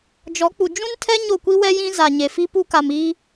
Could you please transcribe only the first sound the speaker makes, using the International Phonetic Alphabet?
d͡ʒ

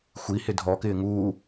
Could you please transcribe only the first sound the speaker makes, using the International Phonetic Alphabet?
xʷ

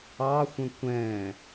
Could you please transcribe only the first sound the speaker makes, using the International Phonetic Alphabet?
ɑ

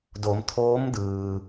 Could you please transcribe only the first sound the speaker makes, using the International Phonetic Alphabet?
d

